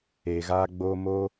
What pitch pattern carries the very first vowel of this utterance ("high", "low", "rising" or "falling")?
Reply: low